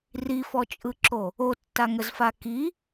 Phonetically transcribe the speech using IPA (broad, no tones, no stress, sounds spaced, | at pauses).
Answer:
r i f ɔ t͡ʃʼ ɯ ǁ o | o tː a ŋ ə z f a k i